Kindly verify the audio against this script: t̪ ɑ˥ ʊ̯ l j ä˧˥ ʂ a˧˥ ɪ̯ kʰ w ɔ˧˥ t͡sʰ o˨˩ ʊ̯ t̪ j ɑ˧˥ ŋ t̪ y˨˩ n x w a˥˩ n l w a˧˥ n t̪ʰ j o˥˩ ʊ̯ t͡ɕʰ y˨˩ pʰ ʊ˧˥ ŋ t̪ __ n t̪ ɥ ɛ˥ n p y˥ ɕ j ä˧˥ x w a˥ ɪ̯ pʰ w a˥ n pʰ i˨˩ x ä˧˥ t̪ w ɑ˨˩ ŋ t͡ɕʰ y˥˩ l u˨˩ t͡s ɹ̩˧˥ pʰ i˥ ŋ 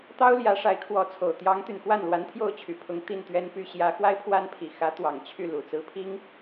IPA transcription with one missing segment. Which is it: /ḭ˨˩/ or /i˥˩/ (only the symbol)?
i˥˩